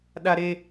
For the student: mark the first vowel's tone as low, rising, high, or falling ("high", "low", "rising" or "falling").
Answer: high